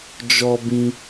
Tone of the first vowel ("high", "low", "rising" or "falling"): high